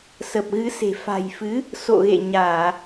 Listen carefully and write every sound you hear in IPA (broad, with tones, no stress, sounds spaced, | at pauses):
s ə˨˩ p̚ ɣ ɨ˨˦ s e̤˨˩ f a̤˨˩ j f ɨ˨˦ | s o̰˧˨ ɣ ḛ˧˨ ɲ aː˧˩˨